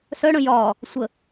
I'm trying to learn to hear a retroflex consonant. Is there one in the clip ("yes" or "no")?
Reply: yes